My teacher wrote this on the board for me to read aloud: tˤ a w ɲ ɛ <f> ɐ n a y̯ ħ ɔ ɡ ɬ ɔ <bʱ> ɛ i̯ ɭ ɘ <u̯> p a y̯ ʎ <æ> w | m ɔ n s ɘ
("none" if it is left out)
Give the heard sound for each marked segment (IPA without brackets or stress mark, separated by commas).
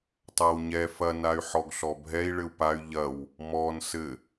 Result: f, bʱ, u̯, ɐ